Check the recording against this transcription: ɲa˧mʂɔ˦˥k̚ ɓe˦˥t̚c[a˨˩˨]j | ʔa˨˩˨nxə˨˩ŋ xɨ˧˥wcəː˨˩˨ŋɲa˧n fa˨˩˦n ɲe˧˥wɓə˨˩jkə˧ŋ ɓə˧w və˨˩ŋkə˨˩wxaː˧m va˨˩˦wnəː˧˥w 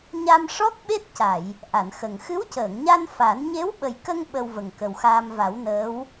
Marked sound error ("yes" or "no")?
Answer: no